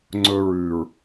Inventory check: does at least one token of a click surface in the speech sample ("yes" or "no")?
yes